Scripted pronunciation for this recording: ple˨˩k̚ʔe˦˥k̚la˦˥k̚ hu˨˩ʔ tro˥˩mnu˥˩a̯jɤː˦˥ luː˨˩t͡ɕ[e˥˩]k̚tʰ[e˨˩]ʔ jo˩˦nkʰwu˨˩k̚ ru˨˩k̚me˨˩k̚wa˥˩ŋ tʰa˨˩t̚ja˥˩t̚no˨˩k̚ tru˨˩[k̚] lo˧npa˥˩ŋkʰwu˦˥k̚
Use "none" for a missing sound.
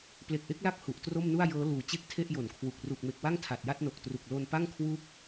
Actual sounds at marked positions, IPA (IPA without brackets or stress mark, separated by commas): e˥˩, e˥˩, k̚